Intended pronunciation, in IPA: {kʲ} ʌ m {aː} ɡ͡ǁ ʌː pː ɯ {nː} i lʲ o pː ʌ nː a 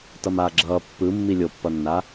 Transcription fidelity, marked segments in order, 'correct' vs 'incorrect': incorrect, correct, incorrect

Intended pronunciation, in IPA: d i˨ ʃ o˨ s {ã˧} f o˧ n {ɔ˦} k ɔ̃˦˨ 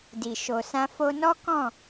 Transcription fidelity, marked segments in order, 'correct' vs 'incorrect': correct, correct

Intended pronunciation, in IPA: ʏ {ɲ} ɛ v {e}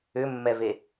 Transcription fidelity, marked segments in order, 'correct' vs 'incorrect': incorrect, correct

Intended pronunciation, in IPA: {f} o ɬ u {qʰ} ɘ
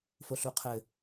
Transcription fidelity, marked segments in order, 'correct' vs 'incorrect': correct, correct

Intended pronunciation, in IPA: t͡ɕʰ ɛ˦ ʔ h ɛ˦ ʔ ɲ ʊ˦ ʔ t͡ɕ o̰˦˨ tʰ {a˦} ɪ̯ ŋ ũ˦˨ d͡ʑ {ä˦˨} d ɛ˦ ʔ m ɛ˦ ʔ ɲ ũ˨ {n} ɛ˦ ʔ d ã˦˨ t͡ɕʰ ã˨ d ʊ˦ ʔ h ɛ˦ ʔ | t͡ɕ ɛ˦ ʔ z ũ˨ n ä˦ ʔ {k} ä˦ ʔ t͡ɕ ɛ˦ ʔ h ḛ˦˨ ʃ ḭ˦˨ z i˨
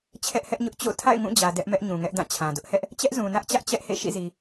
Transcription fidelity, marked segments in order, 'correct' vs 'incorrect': incorrect, incorrect, incorrect, incorrect

